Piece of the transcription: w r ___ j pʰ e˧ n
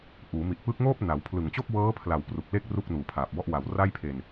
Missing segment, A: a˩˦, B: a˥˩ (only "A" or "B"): B